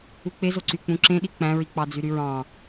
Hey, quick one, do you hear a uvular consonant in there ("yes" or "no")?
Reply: no